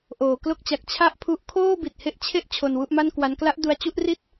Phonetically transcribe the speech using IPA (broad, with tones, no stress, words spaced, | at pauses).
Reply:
ʔoː˩˦klo˥˩k̚t͡ɕa˨˩k̚ t͡ɕʰa˥˩ʔpʰu˦˥ʔ kʰoː˥˩bi˨˩t̚he˦˥ʔt͡ɕʰe˦˥ʔ t͡ɕʰo˧nwu˥˩ʔma˥˩nkwa˦˥n kla˦˥ʔdu˧a̯t͡ɕu˥˩ʔri˥˩t̚